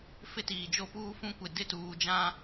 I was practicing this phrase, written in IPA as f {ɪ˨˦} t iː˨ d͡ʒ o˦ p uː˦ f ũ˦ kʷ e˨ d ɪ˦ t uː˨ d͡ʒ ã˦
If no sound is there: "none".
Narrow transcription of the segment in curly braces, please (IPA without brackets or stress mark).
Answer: ɪ˦